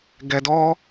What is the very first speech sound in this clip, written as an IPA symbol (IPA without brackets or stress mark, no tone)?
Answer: ɡ